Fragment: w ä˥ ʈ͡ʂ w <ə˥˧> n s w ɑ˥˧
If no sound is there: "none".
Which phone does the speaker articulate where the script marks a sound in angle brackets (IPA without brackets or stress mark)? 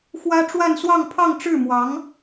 a˥˧